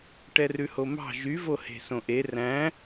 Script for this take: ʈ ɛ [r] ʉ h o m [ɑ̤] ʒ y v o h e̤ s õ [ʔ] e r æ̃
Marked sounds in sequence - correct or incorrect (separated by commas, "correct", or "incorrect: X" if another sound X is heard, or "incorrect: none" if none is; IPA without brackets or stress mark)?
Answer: correct, correct, correct